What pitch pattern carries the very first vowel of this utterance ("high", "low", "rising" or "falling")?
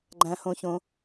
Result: low